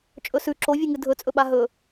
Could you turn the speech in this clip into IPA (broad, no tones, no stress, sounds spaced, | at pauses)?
t͡ʃʼ ɵ s ʉ ǁ o vʲ ʉ ŋ ɨ dʱ ɵ t͡sʼ ɵ ɓ a ɦ ɵ